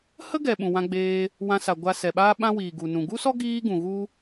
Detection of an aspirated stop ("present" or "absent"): absent